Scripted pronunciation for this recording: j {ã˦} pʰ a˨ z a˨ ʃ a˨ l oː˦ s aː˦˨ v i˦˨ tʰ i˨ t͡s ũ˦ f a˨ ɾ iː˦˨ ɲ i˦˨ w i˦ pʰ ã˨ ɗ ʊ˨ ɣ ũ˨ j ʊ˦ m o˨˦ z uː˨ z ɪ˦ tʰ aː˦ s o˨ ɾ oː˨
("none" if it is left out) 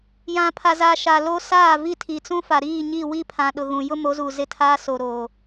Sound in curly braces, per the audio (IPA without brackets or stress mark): ã˨